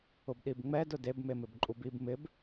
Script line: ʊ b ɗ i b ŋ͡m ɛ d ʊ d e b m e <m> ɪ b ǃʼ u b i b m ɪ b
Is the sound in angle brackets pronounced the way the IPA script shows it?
yes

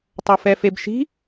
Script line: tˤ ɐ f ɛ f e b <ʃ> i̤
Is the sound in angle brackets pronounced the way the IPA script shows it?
yes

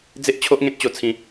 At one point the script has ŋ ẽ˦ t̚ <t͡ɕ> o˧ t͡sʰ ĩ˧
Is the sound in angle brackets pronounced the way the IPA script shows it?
yes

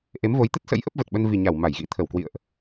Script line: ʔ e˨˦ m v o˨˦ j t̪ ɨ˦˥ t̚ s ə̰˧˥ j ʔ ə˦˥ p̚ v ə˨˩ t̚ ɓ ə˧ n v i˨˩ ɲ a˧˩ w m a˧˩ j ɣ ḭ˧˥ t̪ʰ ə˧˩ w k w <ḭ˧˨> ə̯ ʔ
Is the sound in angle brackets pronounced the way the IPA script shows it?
yes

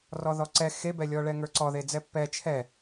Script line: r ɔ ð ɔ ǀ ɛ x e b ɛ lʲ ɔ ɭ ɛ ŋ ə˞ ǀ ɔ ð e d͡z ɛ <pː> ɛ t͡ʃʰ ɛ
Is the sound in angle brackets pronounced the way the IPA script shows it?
yes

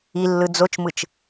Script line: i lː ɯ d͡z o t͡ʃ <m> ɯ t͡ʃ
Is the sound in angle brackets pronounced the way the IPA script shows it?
yes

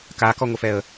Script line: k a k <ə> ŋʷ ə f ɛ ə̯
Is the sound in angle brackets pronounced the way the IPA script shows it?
no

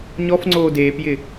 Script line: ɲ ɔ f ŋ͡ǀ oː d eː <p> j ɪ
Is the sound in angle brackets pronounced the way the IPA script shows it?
yes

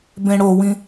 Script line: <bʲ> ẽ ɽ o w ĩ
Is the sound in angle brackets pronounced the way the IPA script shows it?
no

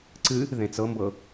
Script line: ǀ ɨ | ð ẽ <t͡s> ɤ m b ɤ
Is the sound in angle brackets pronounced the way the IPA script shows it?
yes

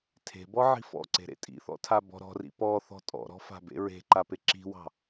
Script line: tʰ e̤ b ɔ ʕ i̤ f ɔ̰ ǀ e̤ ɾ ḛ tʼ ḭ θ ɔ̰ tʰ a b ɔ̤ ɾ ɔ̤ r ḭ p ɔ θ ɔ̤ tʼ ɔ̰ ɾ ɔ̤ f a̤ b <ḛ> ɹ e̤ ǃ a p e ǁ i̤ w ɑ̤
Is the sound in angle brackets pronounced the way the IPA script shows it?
yes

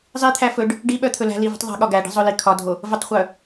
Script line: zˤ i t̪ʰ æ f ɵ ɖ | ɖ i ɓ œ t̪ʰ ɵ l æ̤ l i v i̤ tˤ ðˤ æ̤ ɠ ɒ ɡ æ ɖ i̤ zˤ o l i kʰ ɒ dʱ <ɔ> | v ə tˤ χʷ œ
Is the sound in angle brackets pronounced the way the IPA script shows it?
no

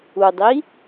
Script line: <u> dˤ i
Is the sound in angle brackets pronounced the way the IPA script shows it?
yes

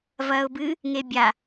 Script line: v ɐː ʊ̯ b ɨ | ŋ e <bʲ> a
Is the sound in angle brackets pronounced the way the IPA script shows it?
yes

